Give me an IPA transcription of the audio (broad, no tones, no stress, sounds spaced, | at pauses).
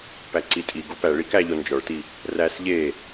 p æ ǀ i tʼ i ɡ o p æ ɭ i k æ ʎ o n d͡ʒ ɒ ɭ t i | r æ s ʎ e